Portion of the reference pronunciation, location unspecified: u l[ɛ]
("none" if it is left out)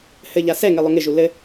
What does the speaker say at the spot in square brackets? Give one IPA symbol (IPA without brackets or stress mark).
ɘ